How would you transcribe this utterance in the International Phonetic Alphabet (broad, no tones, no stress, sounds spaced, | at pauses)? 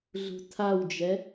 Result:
ɮ ṳ tʰ a w d͡ʒ ɛ